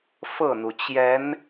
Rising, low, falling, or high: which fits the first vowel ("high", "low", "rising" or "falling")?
falling